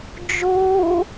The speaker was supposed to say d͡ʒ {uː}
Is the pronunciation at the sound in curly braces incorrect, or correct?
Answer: correct